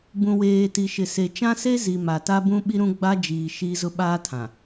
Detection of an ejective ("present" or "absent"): absent